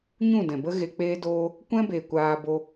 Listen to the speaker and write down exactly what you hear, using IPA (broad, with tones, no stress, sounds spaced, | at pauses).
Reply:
ɲ ũ˦˨ d ɛ̃˨ b ə˦ ɣ e˧ k͡p eː˦ d oː˦ | kʷ ɛ̃˦ b e˨ kʷ aː˧ b o˧